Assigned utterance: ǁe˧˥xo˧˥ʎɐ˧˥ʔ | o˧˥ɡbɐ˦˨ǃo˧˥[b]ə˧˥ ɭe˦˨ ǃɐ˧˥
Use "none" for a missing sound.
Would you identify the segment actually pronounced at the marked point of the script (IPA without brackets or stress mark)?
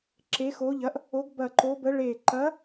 b